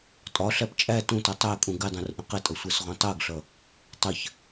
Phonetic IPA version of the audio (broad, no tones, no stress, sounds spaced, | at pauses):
tʼ ɒ ɬ æ p t͡ʃʼ æ t ũ t ʌ tˤ æ kʼ ũ ɡ ɪ dˤ ũ r ʔ ə̃ q ɪ tʼ ʌ sʷ ɜ s ʁ ũ tˤ ɜ ɡ ɬ ʌ | tˤ ə ç